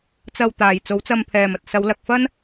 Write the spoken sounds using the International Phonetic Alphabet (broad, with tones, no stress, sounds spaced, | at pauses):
t͡s ɐ˧ w t̪ aː˨ j t͡s o˨˥ w t͡s ɐ˧ m pʰ ɛː˨ m ɐ˨ t̚ s ɐ˨˧ w l ɐ˨ k̚ f ɐ˥ n